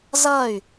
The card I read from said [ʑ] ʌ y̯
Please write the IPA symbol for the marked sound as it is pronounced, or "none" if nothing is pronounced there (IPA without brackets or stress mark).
z